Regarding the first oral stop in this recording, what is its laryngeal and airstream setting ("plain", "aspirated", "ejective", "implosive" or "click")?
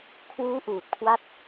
aspirated